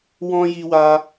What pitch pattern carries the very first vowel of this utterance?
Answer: high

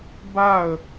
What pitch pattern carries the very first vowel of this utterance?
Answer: falling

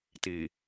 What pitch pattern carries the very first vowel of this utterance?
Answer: low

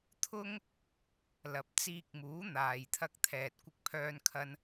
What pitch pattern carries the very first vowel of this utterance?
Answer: high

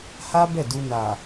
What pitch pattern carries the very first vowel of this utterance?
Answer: high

